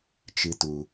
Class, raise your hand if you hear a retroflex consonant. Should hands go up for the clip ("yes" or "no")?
no